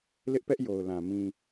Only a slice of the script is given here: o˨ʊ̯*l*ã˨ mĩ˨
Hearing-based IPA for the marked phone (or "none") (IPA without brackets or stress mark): l